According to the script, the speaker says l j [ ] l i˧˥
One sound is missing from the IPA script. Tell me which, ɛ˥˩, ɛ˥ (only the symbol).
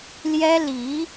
ɛ˥